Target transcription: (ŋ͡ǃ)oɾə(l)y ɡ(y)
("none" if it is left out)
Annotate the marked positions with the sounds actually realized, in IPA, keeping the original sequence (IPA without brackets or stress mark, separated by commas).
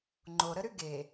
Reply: ŋ͡ǃ, ɾ, e